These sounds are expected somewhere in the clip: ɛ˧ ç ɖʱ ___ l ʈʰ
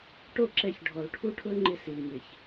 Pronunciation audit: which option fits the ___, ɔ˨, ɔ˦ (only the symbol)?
ɔ˨